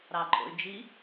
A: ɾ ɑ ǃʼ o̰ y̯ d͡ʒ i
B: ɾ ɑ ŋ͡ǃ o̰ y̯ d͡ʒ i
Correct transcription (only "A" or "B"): A